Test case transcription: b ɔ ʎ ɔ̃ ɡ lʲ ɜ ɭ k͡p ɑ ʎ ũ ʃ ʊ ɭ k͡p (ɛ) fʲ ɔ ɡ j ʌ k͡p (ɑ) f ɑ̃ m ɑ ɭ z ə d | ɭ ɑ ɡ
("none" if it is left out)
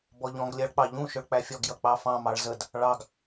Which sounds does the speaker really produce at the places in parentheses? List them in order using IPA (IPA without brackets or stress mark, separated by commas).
æ, ɑ